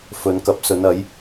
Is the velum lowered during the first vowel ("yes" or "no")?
no